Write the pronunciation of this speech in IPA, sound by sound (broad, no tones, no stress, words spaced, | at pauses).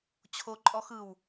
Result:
t͡ɕʰoǃʼɔ xɯw